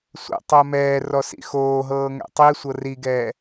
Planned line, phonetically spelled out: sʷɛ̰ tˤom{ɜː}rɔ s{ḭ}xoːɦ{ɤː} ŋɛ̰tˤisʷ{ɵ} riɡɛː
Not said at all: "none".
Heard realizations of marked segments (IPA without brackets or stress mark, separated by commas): ɛː, ḭ, ɤː, ɤ